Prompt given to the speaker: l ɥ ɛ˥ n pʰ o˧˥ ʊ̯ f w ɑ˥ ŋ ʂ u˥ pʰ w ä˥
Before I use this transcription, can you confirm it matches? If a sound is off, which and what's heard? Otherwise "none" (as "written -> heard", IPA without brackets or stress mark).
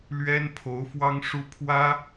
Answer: none